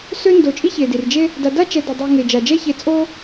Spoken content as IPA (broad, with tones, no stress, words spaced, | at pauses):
sø˥ndo˨t͡ʃʼi˥ çe˩di˩rd͡ʒe˥ | da˨da˥t͡ʃɛ˨do˩ dˤi˨ŋe˩ d͡ʒa˩d͡ʒɛ˦çe˨ t͡sʼo˥